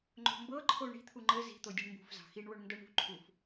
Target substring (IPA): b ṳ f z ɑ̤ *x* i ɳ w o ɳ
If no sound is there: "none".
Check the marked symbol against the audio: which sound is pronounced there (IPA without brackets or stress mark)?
x